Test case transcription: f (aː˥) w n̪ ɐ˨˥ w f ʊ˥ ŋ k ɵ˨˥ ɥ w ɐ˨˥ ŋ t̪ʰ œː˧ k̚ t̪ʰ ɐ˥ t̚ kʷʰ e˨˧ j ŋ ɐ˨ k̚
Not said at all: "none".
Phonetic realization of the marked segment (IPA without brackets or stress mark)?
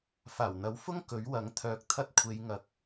aː˨˩